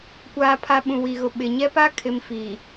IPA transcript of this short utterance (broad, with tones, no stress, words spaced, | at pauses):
kʷaː˨pʰa˨ ɓũ˨wi˨ɣʊ˨ ɓɪ˨ɲɛ˦pa˦ kʰɪ˨m fiː˨